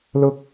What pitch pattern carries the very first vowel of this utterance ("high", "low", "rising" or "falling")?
low